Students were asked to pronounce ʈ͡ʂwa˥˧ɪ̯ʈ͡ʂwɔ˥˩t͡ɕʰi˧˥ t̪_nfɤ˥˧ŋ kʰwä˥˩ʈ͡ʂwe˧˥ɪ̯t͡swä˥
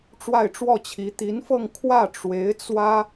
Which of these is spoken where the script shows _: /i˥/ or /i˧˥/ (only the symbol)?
i˧˥